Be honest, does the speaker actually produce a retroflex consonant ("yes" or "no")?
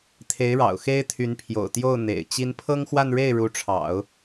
yes